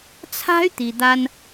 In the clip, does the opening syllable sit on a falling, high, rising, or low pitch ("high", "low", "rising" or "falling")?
high